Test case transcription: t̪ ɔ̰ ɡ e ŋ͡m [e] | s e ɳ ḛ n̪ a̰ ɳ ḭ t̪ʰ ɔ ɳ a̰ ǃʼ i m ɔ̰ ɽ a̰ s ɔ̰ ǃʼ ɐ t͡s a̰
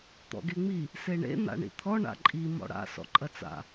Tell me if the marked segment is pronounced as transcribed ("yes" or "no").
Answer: no